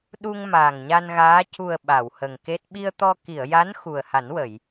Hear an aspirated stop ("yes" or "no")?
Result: no